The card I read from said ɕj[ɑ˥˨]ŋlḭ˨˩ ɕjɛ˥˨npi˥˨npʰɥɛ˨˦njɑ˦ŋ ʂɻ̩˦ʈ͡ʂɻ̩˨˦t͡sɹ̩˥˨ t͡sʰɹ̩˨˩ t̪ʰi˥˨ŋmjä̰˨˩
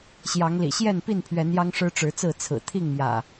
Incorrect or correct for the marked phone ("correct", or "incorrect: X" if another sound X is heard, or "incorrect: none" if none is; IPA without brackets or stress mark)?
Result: incorrect: ɑ˨˦